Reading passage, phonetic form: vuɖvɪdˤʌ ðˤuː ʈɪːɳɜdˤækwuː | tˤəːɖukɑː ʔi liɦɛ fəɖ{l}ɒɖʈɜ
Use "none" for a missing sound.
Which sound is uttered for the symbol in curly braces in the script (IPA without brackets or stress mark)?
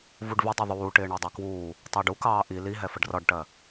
r